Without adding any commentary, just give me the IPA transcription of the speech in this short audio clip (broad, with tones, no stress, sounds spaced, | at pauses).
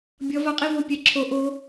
bʲ ʌ˦˥ v a˦˥ qʼ i˥˧ v o˥˧ pʲ ɛ˥˧ ǁʰ o˦˥ ʔ o˦˥